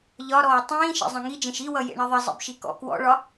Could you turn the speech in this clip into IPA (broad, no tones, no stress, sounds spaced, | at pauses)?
ʎ ɒ ɾ ɔː tˤ ĩː ʃ ḛ zˤ ẽ ŋ i d͡ʒ ẽ ʃ i w ʌ j ḛ ɳ i ðˤ i zˤ ḭ b ʃ i k ɔ̰ k w ɔ̰ ɭ ɒ